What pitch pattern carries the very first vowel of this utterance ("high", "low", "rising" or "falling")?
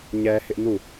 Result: high